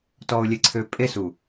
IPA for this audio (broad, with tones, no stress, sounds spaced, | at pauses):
t ɔ˨ ʊ̯ lʲ e˨ ǀʰ ø˨ pʼ e˦ s u˨